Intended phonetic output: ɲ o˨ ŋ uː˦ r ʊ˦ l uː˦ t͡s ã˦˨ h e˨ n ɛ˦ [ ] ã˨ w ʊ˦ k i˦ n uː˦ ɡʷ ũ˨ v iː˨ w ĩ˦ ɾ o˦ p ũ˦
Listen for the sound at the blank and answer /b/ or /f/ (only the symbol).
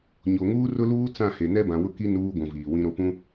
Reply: b